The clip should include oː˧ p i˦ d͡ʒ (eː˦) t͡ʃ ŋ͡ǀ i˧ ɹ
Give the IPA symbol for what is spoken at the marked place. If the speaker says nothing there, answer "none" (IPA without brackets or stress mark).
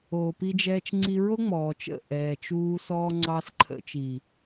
ɛː˦